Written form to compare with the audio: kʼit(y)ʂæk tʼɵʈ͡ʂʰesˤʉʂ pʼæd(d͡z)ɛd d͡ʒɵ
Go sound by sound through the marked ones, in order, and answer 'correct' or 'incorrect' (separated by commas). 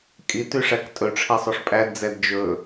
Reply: correct, correct